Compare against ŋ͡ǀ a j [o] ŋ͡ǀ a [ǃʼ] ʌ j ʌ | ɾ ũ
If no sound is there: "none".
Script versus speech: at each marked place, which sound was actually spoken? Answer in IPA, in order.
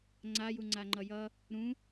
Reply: u, ŋ͡ǃ

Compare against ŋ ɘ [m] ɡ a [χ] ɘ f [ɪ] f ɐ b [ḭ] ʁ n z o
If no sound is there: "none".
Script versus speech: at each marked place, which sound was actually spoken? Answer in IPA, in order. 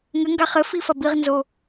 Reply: ŋ, χ, i, i

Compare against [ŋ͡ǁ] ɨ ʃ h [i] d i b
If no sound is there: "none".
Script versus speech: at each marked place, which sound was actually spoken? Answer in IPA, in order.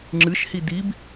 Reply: ŋ͡ǁ, i

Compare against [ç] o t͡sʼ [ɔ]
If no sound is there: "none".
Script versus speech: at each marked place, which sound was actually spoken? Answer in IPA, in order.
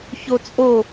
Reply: ç, o

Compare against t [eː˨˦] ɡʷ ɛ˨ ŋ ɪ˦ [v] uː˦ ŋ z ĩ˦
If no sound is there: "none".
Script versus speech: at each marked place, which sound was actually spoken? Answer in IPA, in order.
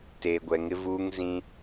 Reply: eː˨, v

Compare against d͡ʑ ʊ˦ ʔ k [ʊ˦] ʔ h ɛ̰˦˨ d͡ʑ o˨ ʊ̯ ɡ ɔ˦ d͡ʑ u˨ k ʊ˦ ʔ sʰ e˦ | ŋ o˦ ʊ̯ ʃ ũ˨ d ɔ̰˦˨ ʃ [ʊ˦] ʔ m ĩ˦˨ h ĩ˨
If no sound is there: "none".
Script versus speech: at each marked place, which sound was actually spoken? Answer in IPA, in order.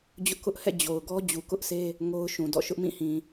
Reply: ʊ˦, ʊ˦

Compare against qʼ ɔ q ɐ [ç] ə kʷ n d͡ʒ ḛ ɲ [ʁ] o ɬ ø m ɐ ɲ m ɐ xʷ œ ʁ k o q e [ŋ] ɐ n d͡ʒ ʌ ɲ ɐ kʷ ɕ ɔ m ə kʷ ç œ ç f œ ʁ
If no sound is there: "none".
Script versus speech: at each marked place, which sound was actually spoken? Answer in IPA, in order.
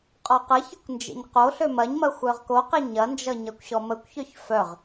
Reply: ç, q, ɲ

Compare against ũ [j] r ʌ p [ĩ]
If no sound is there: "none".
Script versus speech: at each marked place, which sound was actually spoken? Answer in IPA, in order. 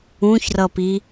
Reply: ç, i

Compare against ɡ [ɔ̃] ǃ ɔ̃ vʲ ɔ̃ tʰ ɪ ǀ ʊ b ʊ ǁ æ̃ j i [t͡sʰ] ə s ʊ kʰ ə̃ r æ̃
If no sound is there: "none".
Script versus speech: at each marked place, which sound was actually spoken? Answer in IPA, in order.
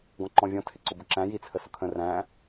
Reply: ɔ̃, t͡sʰ

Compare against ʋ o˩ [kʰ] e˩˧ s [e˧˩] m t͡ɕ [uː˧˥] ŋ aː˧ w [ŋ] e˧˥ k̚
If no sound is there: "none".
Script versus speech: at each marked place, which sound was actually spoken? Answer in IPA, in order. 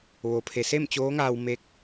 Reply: pʰ, e˥˨, oː˧˥, m

